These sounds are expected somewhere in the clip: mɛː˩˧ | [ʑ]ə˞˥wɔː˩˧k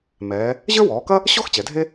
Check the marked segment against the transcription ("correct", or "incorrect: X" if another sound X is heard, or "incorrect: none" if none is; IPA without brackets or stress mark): correct